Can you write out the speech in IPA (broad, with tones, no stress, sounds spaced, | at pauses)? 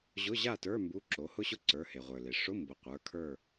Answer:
ʑ ʊ˧˥˧ ʑ a˥˨ t ə˞˧˥˧ m b u˧˥˧ ǁ o˩˥ h ʊ˥ ɕ ʊ˥ ǀ ə˞˩˧˩ h e˩ ʁʷ ə˞˩ l e˩ ʂ ʊ˧˥˧ m b ʊ˩˥ qʷ ə˞˩˧˩ kʰ ə˞˥˨